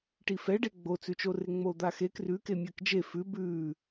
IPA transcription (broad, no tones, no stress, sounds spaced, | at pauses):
ʈ i f ɛ ɖ e ɡ͡b o t͡s ʉ t͡ʃ o r e ŋ͡m o d̪ a x e k r ʉ k e mʲ ɜ k d͡ʒ e f ʉ b ʉ